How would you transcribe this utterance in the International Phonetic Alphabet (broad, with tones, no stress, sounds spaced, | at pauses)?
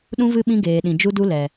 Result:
ɗ ũ˧ v ɨ˧ ɓ ĩ˧ ɡ eː˨ ɗ ĩ˨ d͡ʒ u˧ d u˧ l ɛ˨